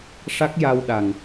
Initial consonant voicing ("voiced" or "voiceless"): voiceless